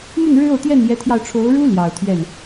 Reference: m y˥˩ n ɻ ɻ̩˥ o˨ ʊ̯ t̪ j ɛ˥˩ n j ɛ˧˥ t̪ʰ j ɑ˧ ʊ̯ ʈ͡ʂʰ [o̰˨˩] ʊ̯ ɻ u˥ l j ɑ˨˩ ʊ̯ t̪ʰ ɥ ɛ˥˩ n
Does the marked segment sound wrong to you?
yes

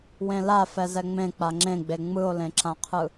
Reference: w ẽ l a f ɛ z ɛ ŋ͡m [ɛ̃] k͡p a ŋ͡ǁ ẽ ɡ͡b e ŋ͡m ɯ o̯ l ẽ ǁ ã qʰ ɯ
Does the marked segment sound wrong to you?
yes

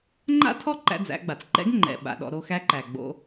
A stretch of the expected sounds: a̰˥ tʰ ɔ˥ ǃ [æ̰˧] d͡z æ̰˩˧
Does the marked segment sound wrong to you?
no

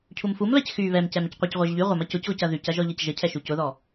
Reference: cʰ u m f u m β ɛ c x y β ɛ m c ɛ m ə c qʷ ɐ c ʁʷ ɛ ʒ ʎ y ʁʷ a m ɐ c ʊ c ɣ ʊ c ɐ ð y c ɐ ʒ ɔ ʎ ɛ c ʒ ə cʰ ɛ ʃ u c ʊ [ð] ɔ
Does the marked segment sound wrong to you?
no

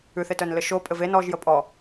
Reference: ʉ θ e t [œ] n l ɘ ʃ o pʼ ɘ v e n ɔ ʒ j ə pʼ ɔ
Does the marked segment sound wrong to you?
no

